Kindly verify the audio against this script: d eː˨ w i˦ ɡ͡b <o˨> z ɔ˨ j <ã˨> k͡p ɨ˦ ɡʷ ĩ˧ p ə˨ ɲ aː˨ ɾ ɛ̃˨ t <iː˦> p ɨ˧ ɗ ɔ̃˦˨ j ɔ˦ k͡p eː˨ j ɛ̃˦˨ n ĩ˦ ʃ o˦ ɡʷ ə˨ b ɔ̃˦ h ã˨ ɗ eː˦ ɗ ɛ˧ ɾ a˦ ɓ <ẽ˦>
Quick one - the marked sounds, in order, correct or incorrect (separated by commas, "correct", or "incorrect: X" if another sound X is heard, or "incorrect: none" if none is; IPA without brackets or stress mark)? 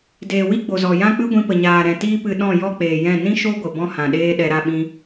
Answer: correct, incorrect: ã˦, correct, incorrect: ĩ˦